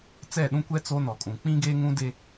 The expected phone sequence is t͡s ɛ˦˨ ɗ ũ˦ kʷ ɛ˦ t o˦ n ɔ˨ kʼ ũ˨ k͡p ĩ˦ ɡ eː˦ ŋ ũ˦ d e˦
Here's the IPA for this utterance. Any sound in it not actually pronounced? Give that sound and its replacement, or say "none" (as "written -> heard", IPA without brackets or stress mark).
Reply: t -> t͡s